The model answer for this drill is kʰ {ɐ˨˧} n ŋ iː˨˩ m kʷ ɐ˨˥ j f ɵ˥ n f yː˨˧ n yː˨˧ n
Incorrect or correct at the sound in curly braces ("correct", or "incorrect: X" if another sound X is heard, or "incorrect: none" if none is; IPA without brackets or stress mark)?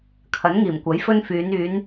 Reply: incorrect: ɐ˨˥